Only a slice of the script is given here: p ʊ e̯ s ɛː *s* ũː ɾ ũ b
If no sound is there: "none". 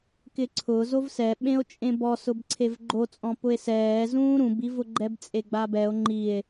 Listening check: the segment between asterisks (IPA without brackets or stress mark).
z